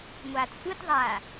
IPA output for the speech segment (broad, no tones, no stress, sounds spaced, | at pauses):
ŋʷ aː t sʷ ɯ t ðˤ aː